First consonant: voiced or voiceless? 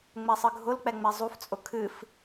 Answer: voiced